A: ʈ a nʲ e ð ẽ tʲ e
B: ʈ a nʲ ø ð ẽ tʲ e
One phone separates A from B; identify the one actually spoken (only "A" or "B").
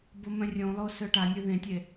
B